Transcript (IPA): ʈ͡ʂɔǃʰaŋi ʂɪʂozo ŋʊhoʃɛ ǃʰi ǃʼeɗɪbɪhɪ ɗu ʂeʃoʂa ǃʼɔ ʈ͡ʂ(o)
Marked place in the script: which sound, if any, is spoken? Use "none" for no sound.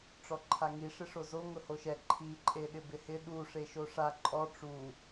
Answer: u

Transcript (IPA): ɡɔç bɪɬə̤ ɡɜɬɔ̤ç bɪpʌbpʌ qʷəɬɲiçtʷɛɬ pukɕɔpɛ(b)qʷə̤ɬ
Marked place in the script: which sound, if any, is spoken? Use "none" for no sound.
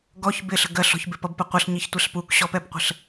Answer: b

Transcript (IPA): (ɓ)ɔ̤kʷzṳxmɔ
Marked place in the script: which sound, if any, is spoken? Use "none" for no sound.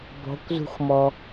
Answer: b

